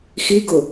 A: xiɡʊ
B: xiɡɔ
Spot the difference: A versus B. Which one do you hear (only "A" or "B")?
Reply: A